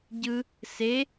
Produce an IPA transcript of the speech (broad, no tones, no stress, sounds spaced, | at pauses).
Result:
ɟ ɯ | s e